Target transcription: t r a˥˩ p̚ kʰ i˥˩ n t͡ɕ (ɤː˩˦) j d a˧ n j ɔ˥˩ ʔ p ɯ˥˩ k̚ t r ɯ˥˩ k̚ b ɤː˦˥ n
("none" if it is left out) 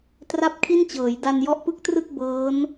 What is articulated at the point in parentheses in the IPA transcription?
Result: ɤː˩˦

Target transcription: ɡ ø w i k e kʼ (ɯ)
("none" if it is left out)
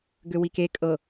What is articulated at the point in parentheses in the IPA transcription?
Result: ɤ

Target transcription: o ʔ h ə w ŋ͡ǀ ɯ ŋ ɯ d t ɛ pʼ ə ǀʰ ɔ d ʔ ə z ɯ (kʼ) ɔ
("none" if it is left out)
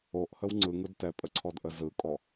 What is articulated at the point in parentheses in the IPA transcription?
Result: kʼ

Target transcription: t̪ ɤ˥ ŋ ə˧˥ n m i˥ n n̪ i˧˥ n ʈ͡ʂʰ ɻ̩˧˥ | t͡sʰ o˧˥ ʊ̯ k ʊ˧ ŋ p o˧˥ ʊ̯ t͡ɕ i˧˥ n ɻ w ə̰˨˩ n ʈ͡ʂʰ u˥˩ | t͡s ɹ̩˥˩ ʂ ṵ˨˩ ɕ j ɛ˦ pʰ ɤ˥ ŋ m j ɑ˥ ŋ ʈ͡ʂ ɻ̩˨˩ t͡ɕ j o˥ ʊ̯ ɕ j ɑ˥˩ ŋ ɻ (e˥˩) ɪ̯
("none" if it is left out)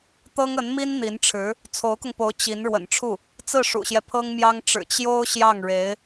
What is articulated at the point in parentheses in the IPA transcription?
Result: e˧˥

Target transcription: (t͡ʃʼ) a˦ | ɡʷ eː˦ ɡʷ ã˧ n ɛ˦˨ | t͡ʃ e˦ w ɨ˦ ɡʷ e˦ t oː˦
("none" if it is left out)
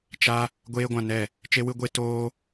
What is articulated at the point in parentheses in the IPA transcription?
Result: t͡ʃ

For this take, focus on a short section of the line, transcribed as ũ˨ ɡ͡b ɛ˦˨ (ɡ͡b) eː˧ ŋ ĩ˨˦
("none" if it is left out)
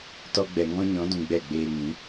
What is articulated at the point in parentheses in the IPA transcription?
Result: ɡ͡b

